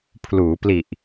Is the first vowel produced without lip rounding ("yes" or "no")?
no